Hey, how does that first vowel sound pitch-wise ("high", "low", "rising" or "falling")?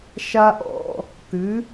high